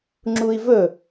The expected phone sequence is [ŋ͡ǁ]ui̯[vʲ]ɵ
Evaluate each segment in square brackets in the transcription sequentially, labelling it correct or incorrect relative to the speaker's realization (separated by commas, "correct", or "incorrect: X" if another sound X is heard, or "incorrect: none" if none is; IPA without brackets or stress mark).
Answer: correct, incorrect: v